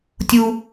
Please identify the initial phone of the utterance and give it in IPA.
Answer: tʲ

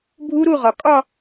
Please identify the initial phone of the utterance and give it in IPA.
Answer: bʱ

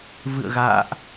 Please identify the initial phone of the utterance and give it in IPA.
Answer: v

